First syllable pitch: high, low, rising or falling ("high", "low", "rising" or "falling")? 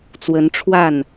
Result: rising